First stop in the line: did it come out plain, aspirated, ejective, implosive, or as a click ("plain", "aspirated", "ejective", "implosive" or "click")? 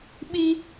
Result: implosive